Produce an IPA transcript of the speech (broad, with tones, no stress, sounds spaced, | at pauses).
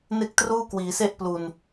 n e˥˩ k̚ t r uː˥˩ k w iː˩˦ s e˥˩ ʔ p l u˨˩ n